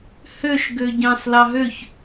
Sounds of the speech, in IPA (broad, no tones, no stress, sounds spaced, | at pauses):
h ø ʃ ɡ ø ɟ ɑ̃ s l ɑ ɦ ø ç